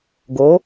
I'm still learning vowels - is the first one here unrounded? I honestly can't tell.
no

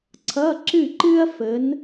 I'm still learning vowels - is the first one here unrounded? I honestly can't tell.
yes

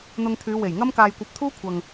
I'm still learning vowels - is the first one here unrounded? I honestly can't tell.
no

